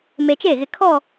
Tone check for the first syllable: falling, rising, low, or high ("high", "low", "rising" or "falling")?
low